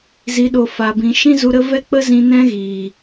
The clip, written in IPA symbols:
z i˨ ɗ o˨ f a˨ b ĩ˨ ʃ ĩ˦ z u˧ ɾ ə˦ v ɛ˦ k͡p ə˦ z ĩ˧ n ɛ̃˦ ɣ i˨

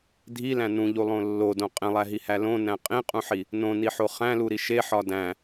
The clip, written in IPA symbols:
dʱ i l æ̃ n ũ ʎ u lˠ õ lː o d õ qʼ ẽ lˠ æ ɦ i h æ l õ n æ̃ qʼ ĩ qʼ ũ ħ i | n õ n i ħ o χ æ̃ l u ɾ i ʃ e ħ ɒ d æ̃

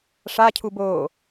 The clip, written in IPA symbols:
ʂ a cʰ u b oː

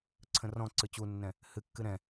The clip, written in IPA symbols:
ǀʰ ə̃ r ɔ̃ ǀ ɨ t͡ɕ u nː ɛ̃ | h ɨ kː ɨ ɾ ɛ̃

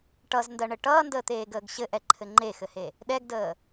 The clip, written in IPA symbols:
ʈ ʌ z n d ɜ ɳ ɘ ʈ ʌː n d əː t̪ eː ɡ əː ɡ ɕ ɘ ʔ ɛ ǃʰ ɘ ŋ͡ǃ e x ɘ h e | ɗ ɛ ɡ d əː

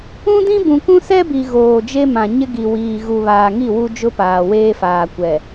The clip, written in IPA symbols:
ũ˦ d ĩ˦ b ũ˨ k ũ˦ s ɛ˦ b i˨ ɣ oː˨ d͡ʒ e˦ m ã˨ ɲ ɪ˦ ɡ i˨ w iː˨ ɣ u˨ β aː˨ ŋ i˦˨ w u˦ d͡ʒ ʊ˦ p aː˨ w eː˦ f aː˨ kʷ ɛ˨

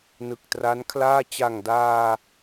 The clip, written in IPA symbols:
n ɯ˨˩ k̚ t r a˦˥ n kʰ l aː˥˩ t͡ɕ a˨˩ ŋ d aː˧

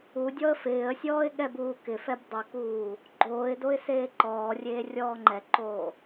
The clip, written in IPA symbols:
u dʲ ɔ ə̯ f ɪː ə̯ sʲ ɔː ɪ̯ ɠ ɛ b uː k ɪ f ɛ b dˤ u k uː | ɡ͡ǃ oː ɪ̯ d o ɪ̯ s eː ǃ ɔː rʲ eː rʲ ɔː ŋ͡ǃ ɛ ǃ oː

